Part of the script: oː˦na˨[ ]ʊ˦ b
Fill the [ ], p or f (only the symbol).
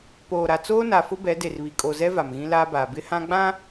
f